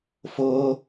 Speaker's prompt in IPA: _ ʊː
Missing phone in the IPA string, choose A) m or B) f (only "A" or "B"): B